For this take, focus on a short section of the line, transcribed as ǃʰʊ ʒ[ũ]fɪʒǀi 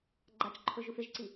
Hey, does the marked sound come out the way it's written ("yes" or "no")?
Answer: no